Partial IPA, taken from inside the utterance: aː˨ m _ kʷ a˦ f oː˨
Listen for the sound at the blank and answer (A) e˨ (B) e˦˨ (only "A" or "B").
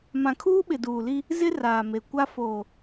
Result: A